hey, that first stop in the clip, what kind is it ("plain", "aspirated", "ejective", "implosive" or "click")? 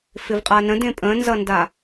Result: ejective